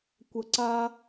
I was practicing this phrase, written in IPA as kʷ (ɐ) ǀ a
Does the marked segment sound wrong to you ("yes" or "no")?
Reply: no